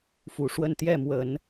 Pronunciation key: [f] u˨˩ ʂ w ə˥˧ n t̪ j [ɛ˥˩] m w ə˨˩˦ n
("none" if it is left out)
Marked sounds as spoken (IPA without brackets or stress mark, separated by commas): f, ɛ˥˩